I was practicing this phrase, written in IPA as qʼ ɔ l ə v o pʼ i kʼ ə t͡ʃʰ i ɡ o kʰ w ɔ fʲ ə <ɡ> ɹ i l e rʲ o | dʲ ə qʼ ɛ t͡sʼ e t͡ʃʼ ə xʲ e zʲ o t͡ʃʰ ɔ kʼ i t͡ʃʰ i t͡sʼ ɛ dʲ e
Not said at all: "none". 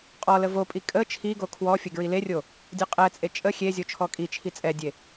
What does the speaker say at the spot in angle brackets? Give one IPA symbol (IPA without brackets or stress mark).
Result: ɡ